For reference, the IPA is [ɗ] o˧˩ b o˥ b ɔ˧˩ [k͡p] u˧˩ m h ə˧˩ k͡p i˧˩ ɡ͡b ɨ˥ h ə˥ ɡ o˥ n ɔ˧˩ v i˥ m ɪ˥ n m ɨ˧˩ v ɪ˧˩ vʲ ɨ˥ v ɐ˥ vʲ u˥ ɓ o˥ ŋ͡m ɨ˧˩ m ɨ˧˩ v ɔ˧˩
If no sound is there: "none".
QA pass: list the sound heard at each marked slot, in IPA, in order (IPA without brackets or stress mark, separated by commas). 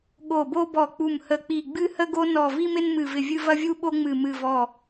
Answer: ɠ, k͡p